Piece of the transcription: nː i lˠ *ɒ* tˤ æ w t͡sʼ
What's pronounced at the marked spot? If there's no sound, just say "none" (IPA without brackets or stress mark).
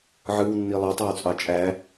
ɑ